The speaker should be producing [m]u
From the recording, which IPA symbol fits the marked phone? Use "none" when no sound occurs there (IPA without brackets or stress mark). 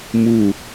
m